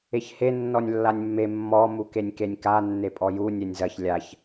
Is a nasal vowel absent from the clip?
yes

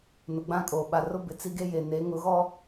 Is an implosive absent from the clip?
no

